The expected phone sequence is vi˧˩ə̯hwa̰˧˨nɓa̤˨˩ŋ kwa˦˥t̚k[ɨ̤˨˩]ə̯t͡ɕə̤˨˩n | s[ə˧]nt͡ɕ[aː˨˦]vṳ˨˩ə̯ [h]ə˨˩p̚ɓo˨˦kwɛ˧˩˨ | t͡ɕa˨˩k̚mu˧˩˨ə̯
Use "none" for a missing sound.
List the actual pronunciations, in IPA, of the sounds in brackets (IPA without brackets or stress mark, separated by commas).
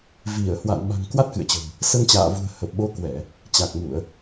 ɨ̰˧˨, ə˧, a̰ː˧˨, h